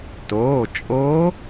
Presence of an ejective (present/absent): present